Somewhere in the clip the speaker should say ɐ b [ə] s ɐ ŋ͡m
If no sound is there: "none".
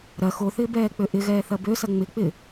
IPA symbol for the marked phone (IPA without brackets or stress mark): ø